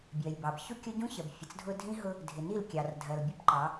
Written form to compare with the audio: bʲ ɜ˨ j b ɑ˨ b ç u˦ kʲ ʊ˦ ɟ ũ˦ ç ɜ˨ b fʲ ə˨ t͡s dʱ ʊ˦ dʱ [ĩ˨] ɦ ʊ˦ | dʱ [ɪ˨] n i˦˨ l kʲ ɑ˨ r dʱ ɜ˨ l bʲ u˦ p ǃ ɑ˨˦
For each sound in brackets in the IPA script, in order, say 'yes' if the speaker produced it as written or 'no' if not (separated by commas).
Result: no, yes